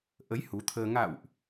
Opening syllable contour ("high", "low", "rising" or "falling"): rising